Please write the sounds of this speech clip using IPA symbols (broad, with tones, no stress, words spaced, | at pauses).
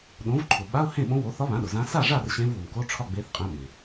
ɗõ˩˥vǃʰʊ˩ɓa˧˥˧ʊ̯ hẽ˥˨ɓõ˧˥ wo˩˥θɒ˧˥βã˩˥ɗʊ˩ zã˧˥ sa˥˨ʐa˥˨r ɕẽ˧˥vwʊ˩mko˧˥˧ʈ͡ʂʰɒ˥˨ ɡ͡be˧˥θqʼẽ˧˥ɓẽ˩